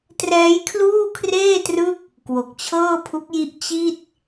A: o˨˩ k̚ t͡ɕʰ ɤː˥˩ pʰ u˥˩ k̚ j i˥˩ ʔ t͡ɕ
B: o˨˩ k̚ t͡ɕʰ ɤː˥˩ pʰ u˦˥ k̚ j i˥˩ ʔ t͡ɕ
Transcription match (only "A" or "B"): B